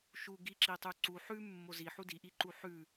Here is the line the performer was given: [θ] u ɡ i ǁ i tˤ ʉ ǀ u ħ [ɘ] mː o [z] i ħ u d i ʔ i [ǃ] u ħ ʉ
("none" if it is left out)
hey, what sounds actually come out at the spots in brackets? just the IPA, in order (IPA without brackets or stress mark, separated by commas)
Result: ʃ, ʉ, z, ǃ